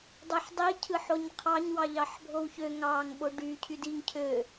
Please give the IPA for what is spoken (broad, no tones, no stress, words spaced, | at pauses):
dˤɯħdˤi cʰɯħoɲqʰɑɲ wɑʎɑħbʱowçø ŋɑŋ ɓoɖy cʰydiŋ cʰø